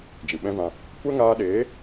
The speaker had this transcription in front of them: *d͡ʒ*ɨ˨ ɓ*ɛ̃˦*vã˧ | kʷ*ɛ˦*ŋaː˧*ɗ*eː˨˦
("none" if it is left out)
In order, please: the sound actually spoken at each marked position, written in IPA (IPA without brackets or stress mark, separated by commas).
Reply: d͡ʒ, ɛ̃˦, ɛ˦, ɗ